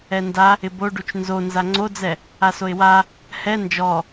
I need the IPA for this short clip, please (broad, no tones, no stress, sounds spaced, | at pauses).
ɛ n d a | ɪ b o ɖ u t͡ʃ n z o n z a ŋ͡ǀ o d͡z ɛ | a s o ɪ̯ w a | h ɛ n d͡ʒ ɔ